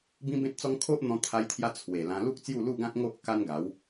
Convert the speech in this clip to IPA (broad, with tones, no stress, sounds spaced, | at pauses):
b ĩ˦ b ẽ˦ t̚ t͡s ɔ˦ ŋ kʰ o˦ ʔ n̪ ɔ̃˧ t̪ʰ a˧ j t̪ʰ j a˧ t͡sʰ w e˨˩ l ã˧ l u˦ k̚ t͡s j u˥˧ l u˥˧ ɡ ã˦ t̚ ŋ o˦ ʔ k a˦ n ɡ a˨˦ w